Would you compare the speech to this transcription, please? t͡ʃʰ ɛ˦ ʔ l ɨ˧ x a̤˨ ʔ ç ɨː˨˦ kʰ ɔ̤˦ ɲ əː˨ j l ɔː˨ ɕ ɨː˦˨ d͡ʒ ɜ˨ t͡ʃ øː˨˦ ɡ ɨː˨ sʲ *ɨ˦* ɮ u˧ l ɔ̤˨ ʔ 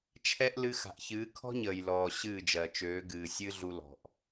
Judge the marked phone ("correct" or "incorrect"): correct